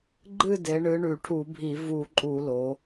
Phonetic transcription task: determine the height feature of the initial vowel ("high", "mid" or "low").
high